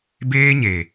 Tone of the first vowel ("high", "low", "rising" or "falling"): high